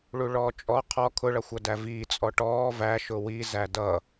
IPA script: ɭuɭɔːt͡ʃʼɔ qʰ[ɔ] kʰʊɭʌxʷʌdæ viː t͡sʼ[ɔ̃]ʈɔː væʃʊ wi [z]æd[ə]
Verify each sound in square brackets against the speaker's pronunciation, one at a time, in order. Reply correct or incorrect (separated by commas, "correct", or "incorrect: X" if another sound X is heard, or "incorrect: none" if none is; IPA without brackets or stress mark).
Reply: correct, incorrect: ɔ, correct, incorrect: ʌ